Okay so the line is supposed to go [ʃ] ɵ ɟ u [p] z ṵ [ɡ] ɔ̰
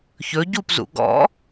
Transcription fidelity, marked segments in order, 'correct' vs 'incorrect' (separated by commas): incorrect, correct, correct